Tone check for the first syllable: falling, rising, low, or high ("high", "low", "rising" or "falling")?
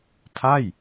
falling